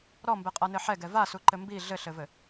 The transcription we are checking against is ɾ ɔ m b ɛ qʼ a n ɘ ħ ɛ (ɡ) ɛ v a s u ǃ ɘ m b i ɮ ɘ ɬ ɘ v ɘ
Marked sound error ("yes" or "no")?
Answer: no